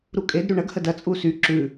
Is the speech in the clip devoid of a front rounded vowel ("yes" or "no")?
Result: no